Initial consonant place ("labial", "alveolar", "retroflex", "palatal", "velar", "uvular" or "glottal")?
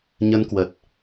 palatal